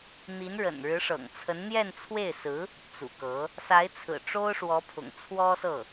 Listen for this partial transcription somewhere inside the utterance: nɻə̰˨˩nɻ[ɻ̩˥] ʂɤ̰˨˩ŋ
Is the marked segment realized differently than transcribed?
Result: yes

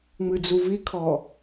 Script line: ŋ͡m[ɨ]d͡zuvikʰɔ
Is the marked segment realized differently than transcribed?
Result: no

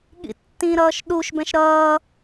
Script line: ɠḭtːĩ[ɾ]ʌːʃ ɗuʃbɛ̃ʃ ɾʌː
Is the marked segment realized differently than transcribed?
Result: no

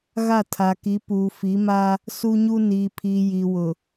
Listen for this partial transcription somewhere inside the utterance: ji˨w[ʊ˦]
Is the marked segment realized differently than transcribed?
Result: yes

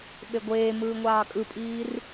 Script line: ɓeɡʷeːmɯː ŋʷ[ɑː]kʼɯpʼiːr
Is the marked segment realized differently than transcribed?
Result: no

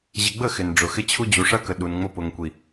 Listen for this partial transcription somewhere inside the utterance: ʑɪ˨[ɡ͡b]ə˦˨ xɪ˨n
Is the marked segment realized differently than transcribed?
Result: no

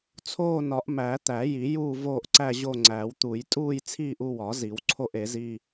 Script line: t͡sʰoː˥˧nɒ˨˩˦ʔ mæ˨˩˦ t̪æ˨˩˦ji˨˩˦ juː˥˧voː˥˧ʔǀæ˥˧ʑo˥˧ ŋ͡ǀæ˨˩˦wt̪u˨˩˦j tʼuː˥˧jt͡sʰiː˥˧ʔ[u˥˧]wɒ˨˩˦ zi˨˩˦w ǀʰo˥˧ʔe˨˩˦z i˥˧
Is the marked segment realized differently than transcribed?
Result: no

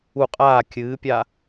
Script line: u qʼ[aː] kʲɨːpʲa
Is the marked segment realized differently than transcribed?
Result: no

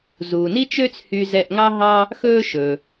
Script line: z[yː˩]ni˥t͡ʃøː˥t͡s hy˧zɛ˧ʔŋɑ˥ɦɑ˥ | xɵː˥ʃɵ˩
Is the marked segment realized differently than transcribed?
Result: yes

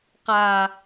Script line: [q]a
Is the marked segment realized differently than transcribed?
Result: no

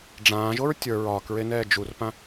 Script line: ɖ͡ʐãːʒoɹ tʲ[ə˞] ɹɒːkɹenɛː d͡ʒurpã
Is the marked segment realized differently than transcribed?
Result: no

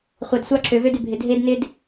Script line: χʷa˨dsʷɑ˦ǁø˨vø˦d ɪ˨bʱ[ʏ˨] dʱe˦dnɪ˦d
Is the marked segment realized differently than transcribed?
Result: yes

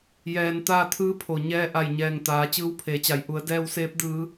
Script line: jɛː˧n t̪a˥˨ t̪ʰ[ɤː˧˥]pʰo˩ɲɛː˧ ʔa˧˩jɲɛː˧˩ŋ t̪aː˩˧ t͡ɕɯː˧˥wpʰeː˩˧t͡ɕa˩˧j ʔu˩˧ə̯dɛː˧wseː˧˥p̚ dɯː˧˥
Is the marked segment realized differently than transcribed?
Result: yes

